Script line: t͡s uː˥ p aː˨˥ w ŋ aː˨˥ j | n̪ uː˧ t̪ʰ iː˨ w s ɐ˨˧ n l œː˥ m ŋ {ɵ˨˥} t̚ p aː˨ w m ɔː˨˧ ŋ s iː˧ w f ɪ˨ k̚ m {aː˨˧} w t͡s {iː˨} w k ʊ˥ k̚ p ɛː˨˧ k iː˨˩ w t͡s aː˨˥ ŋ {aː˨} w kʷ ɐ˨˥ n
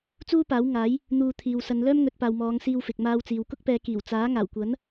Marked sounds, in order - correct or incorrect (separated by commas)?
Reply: correct, incorrect, correct, incorrect